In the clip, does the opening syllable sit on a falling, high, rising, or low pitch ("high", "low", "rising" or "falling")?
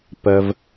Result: low